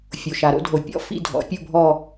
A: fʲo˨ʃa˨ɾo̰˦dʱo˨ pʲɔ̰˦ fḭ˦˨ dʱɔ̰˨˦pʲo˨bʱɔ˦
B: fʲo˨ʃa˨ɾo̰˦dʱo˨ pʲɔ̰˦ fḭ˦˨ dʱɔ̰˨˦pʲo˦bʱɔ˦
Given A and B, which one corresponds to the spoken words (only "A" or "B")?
B